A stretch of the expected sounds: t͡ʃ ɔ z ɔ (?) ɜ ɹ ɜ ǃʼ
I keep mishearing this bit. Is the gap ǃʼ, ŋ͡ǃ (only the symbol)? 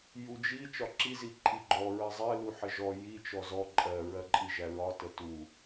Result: ǃʼ